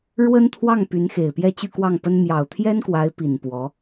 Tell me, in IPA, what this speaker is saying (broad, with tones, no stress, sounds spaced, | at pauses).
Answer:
ɻ w ə˥ n t̪ʰ w ɑ˥˩ ŋ p y˧˥ n x e˨˩ ɪ̯ p j ɛ˥˧ t͡ɕ y˥˧ k w ɑ˥˩ ŋ p ə˥ n m j ɑ˨˩ ʊ̯ t̪ʰ j ɛ˥ n k w a˧˥ ɪ̯ p i˨˩ n p w ɔ˧˥